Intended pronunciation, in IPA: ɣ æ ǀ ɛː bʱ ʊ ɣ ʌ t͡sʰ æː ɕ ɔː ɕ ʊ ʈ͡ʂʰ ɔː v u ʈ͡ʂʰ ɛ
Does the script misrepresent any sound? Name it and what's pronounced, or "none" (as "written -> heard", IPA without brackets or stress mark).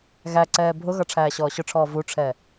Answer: t͡sʰ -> ʈ͡ʂʰ